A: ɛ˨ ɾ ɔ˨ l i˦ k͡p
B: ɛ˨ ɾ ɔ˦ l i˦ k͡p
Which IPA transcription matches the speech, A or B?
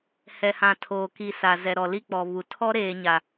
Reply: A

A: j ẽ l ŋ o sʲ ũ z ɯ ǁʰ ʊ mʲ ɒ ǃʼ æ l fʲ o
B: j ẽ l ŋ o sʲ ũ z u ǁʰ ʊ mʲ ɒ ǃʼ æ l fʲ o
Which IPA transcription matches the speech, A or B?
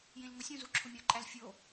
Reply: B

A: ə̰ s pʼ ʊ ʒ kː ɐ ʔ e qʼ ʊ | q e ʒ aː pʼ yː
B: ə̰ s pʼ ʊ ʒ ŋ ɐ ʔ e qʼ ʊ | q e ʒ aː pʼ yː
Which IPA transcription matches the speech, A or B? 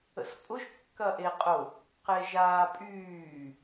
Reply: A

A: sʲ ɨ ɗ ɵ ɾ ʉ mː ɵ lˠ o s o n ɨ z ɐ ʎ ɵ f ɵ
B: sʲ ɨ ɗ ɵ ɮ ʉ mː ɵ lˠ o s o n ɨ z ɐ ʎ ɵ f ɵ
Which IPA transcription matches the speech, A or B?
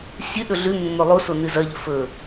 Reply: B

